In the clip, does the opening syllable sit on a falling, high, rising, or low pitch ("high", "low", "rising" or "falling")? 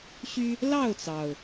high